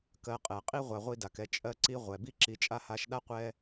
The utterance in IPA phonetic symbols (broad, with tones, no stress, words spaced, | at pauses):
kɜ˨qʼɛ˩qʼi˥ ʁʷa˨ʁʷi˦da˩kɛ˦ t͡ʃʼɜ˦ǀi˦ʁʷɛ˩ bi˥ǁi˨t͡ʃʼa˥ha˦ʃ ɗa˥qʷɛ˦